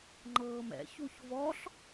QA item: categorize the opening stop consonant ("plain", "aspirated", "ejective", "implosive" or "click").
click